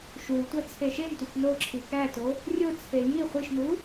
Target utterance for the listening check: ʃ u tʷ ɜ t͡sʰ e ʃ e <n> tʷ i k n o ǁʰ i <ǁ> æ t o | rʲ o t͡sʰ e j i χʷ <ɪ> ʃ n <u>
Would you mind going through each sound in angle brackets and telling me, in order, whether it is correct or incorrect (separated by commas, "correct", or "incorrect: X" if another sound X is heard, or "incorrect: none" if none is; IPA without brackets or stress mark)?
correct, incorrect: k, incorrect: i, correct